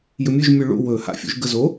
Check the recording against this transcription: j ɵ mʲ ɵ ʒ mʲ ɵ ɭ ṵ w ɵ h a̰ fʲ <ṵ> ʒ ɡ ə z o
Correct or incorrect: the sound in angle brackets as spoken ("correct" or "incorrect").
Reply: correct